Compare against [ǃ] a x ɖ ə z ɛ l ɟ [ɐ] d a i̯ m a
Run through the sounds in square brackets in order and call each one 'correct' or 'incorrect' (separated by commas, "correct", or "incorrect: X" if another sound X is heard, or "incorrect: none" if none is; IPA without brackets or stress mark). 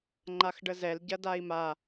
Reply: incorrect: ŋ͡ǃ, correct